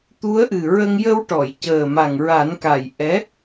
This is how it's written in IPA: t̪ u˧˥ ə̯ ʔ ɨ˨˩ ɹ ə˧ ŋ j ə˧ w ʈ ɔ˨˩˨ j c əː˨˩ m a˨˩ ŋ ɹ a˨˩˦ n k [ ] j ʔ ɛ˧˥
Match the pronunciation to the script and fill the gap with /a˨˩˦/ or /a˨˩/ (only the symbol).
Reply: a˨˩